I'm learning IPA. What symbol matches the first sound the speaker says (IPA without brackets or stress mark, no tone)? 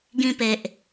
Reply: ɡ